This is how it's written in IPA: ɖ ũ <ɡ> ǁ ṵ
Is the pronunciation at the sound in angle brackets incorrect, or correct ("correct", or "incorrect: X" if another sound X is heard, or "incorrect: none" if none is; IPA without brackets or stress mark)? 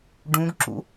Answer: correct